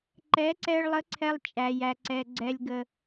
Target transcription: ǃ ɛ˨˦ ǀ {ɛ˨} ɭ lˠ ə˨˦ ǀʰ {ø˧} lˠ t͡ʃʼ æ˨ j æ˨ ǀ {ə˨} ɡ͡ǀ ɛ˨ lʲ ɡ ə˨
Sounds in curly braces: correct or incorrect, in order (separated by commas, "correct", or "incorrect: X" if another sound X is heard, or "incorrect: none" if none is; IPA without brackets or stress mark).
incorrect: ɛ˧, incorrect: ɛ˧, incorrect: ɛ˨